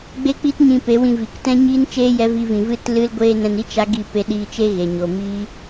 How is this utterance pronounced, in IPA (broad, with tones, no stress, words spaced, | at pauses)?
ɡ͡be˦k͡pi˦tɲĩ˧pe˨˦ wĩ˧vi˨k tɛ̃˦ɲiː˦n t͡ʃeː˦jɛ˨˦vi˧vĩ˨ vɨ˦tlɨ˦lɡʷeː˦ nɛ̃˧ni˦ t͡ʃa˦ ɡi˦˨pe˧ɗiː˧t͡ʃe˦ ɣe˨ɲo˨ miː˦